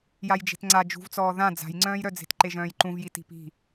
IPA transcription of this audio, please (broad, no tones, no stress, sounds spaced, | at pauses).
j a j d͡ʒ e̤ t ŋ͡ǀ a d͡ʒ ṳ v t͡s ɔː ð ã d͡z a̤ j ŋ͡ǀ œ̃ː j ɾ œ d͡z e̤ t ǃ e ʒ œ̃ː j ǃ ũ v j i t i̤ p i̤